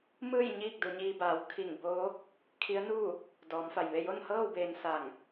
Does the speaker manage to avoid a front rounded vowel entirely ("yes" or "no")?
yes